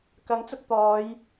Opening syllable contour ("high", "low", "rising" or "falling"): rising